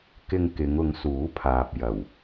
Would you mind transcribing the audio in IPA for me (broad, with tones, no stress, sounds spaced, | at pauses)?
k ɪ˧ ŋ k ɪ˨˧ ŋ ʊ˨˧ ŋ s uː˨˥ pʰ aː˨ p̚ j ɐ˨˩ w